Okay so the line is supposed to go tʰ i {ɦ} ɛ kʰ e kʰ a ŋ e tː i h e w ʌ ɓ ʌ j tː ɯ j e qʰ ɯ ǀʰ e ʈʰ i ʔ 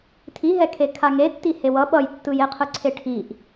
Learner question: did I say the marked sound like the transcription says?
yes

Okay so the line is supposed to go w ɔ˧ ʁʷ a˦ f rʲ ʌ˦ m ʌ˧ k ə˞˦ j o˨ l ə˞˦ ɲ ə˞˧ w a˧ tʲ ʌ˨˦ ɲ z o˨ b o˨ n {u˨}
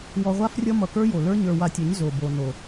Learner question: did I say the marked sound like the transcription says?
no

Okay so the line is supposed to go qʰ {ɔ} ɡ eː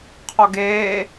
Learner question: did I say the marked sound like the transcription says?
yes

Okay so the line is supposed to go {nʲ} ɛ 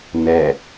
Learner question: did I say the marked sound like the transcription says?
no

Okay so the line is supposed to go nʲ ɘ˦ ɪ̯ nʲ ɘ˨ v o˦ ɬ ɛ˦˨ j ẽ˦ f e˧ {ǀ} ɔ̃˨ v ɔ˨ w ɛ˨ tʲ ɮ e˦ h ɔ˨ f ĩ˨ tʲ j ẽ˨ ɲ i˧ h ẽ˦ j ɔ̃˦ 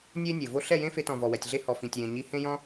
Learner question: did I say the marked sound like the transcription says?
no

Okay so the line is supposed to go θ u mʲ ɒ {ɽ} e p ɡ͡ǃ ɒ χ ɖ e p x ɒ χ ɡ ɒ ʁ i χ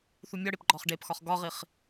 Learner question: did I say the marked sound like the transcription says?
yes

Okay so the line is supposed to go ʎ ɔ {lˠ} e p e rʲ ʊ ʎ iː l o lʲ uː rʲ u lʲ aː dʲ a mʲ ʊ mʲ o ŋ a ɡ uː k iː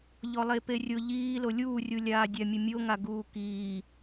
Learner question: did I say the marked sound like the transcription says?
yes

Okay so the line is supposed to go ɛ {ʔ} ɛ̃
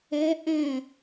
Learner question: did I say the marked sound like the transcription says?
yes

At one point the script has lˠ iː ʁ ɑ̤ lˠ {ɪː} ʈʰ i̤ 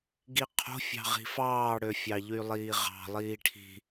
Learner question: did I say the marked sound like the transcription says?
no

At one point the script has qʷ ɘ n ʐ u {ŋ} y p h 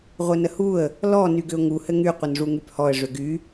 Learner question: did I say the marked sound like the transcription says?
yes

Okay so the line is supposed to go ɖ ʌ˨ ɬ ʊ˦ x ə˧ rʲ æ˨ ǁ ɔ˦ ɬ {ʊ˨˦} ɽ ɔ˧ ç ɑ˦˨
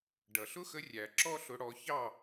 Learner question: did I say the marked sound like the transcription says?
no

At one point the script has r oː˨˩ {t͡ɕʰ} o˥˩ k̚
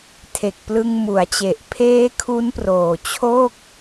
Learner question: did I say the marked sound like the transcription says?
yes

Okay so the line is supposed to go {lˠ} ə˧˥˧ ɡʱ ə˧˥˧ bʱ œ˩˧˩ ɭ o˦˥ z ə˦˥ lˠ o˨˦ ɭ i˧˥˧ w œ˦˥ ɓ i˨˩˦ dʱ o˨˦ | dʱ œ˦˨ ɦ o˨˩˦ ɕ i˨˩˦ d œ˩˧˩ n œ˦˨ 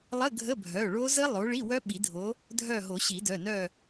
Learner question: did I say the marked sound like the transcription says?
yes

